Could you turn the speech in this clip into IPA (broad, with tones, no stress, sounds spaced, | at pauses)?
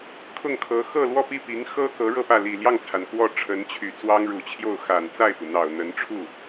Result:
kʰ ʊ˥˩ ŋ kʰ ɤ˧˥ x ɤ˥˧ l w ɔ˥˧ p i˥˩ p i˧˥ ŋ x ɤ˥ k ɤ˧˥ ɻ ɤ˥˧ p ä˥˩ l i˨˩ l j ɑ˥˩ ŋ t͡sʰ a˩ n k w ɔ˥˩ ʈ͡ʂʰ ə˧˥ n t͡ɕʰ y˨˩ t͡s w ɑ˥ ŋ ɻ u˨˩ t͡ɕʰ j o˥˩ ʊ̯ x a˨˩ n t͡s a˥˩ ɪ̯ p u˩ n̪ ɑ˨˩ ʊ̯ n̪ ə˧˥ n ʈ͡ʂʰ u˥˩